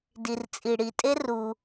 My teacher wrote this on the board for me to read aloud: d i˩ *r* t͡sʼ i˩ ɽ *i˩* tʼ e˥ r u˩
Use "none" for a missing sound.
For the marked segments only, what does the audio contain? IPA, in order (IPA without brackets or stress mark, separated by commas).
r, i˩